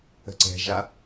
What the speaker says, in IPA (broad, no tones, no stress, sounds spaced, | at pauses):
ə̤ ǀ ɛ̤ ʒ a